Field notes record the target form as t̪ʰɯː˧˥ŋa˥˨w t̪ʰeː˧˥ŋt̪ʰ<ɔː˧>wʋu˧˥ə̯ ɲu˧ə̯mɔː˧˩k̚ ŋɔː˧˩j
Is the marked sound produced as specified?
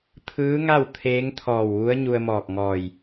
no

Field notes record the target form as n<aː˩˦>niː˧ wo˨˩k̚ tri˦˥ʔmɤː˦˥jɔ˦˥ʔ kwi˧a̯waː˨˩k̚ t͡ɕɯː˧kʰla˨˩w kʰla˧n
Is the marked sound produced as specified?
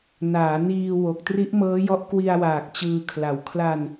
yes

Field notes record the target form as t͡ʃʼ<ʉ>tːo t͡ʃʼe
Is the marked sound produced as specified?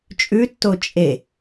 yes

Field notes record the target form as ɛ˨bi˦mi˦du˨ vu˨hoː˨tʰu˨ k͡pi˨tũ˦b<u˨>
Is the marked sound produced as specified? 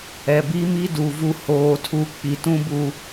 yes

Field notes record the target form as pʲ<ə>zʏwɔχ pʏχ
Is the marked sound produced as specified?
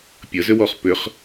yes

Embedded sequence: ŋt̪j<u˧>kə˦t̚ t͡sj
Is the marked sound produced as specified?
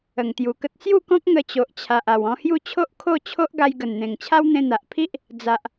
no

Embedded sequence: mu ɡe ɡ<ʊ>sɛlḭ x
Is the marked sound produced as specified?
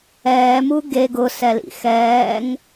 yes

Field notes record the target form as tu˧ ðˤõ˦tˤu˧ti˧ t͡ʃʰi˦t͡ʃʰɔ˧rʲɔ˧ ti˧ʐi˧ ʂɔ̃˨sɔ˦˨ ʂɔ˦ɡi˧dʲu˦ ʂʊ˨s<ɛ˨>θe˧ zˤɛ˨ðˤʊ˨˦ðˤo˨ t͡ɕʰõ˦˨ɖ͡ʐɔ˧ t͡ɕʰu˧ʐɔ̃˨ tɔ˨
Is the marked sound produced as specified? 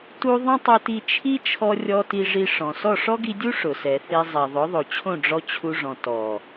yes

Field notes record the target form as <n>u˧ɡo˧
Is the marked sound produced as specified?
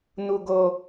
yes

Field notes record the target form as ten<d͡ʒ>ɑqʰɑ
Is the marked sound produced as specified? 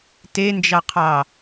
yes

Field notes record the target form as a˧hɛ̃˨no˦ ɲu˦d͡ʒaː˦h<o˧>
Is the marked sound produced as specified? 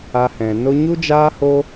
no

